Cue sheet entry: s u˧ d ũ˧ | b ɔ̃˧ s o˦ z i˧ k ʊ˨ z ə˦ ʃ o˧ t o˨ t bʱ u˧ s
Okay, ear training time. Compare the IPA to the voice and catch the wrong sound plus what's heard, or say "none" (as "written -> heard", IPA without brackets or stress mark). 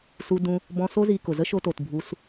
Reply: none